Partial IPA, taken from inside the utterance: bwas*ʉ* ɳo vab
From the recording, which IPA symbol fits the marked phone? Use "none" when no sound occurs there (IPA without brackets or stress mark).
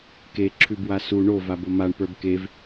u